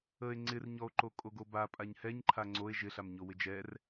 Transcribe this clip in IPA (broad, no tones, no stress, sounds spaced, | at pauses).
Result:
ə e̯ ŋ͡ǀ ɪ r ɲ ɔ o̯ ǃ o kʼ o ɡ o b a pʼ a ɲ h ɛ ɲ ǃʰ a ŋ͡ǀ o e̯ ʒ ɪ ɬ a m ɲ o w ɪ d͡ʒ ɛ r